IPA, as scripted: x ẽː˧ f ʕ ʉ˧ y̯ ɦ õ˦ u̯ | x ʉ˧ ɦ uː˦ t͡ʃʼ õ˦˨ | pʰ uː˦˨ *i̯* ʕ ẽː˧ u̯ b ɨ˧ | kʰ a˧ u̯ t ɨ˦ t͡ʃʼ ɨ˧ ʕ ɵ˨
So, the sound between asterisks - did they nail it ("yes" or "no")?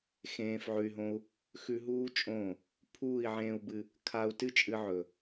yes